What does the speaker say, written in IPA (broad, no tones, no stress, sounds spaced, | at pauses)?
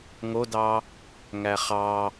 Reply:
ŋ o d ɑ | ŋ æ χ ɑ